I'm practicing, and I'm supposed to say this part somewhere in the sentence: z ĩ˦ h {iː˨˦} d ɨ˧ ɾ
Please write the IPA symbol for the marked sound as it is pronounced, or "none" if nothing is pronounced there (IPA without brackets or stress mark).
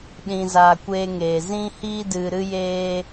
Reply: iː˦